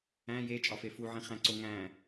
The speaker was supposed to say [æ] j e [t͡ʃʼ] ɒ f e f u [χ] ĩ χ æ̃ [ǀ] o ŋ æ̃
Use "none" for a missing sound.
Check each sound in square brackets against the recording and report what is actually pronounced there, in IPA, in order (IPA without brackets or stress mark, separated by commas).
æ̃, t͡ʃʼ, ʕ, ǀ